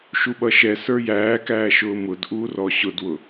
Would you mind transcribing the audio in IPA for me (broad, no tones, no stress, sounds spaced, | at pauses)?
ʃ u ɓ ʌ ʃ ɛ s ə˞ j æː k æː ʃ ʊː m ʊ d ʔ uː r ɔ ɕ ʊ d w ʊ